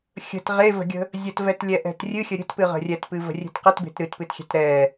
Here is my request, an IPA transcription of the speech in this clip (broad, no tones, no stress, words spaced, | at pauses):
xʲə̤t ʁevə̤ɡʲə̤ | zʲətvɛtlʲɛʔɛ̤t rʲɨxʲə ɾʲə̤tpɨʁə̤ rʲɛtpɨvə̤rʲe̤t qətbe̤t ɾɨtpɨtxʲɛ̤t ɾɛ